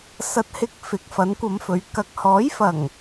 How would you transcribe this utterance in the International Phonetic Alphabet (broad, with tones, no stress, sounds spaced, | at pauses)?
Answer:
s ɐ˨ t̚ h ɪ˧ k̚ f ɪ˨˥ k̚ f ɐ˨˥ n kʷ ɐ˨˧ m f ɵ˨˧ ɥ k ɐ˧ k̚ h ɔː˨˥ j f ɐ˨˩ ŋ